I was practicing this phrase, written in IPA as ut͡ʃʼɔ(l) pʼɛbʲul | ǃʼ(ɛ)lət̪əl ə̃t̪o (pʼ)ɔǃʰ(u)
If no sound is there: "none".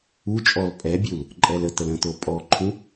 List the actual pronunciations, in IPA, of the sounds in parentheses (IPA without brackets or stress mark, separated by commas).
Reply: l, ɛ, pʼ, ũ